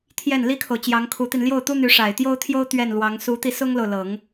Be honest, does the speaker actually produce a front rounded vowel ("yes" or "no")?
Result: yes